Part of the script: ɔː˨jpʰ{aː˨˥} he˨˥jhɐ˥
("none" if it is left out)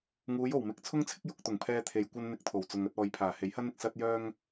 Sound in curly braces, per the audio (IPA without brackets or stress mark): aː˨˩